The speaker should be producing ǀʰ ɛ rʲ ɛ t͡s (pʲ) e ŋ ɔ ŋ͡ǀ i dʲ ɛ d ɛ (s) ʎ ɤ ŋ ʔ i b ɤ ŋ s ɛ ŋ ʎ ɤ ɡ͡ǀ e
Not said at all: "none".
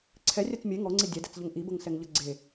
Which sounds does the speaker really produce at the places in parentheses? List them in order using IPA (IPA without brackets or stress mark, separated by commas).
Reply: mʲ, t͡s